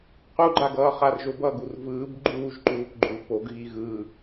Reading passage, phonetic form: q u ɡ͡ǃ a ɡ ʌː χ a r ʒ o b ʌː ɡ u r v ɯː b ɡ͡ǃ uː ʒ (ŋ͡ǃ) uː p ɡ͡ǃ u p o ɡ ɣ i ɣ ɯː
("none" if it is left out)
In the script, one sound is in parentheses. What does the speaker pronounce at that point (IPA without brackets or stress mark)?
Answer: ǃ